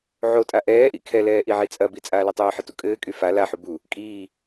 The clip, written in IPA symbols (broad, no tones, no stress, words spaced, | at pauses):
ʕotʼa ʔɛːʔḭ kʰɛlɛː ʔiʕit͡sʼɐbi t͡sʼaːlitˤɘːħə tṵkʼɘːkʼy fa laħu bu | kʼiː